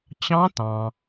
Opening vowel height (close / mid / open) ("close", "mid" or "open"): open